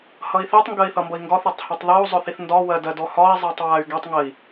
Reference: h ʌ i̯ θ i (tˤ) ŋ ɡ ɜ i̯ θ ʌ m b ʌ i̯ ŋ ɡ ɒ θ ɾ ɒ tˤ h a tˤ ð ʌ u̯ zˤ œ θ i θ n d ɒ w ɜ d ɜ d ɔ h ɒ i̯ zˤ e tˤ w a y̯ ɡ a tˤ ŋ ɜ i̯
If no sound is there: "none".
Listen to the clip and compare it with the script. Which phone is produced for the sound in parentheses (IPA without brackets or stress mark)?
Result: tˤ